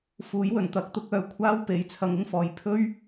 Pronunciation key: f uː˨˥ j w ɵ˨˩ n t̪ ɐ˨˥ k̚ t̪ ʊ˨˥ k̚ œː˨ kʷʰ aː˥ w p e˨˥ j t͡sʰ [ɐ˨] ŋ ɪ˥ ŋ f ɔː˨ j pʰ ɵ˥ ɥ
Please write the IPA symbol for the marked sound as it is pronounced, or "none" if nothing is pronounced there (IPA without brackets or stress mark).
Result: ɐ˧